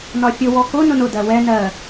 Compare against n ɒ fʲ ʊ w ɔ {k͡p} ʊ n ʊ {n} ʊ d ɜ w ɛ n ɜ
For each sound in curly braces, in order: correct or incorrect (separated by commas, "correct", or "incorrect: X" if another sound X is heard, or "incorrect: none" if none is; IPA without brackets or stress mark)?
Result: incorrect: k, correct